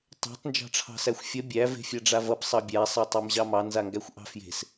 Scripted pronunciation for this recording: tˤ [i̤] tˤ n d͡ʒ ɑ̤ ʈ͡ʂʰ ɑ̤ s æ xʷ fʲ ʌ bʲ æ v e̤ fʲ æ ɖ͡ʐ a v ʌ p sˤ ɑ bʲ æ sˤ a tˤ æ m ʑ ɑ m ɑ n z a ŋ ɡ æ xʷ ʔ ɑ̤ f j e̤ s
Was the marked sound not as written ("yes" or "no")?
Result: yes